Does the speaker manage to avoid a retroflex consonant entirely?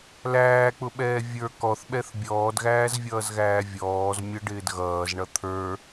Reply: no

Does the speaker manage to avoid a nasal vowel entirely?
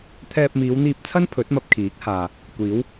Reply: yes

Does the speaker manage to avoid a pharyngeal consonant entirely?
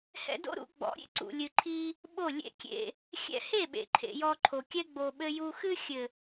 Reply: yes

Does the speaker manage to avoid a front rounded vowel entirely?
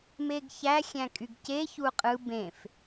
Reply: no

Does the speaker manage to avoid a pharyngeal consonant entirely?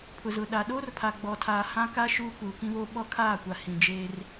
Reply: yes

